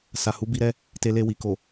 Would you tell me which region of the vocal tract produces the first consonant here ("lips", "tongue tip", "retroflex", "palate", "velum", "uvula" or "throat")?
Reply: tongue tip